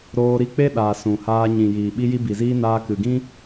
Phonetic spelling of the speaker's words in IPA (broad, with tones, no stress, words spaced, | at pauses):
ɾoː˧ɾi˧ k͡pe˦ɗaː˨ sũ˨haː˧ ɲĩ˨jiː˨ ɓi˧ji˧bi˨ziː˧ naː˧kɨ˨ɡĩ˦